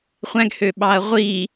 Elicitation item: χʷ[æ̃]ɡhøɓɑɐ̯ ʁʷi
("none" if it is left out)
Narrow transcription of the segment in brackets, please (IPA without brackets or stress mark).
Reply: æ̃